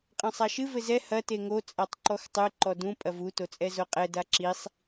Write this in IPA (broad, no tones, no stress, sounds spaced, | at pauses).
qʼ ɐ̃ sˤ a ʃ ɨ v ɘ z ɛ h ɐ t e ŋ o t͡sʼ a tˤ ǃ ɔ x tˤ ɨ ǃ ɔ d ũ pʼ ɐ v u t o t͡sʼ ɛ z o qʼ ɛ d a ǁ i sˤ